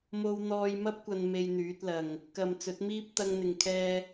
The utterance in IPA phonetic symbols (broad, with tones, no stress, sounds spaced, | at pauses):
m o˧ w n̪ ɔː˧ j m ɐ˥ p̚ kʷ ɐ˧ n m e˧ j n̪ yː˨˥ t̚ l ɐ˨ ŋ | k ɐ˨ m t͡s ɵ˨˥ t̚ m iː˥ p̚ t̪ ɐ˧ ŋ n̪ ɪ˨ ŋ kʰ ɛː˧